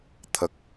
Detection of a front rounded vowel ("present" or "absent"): absent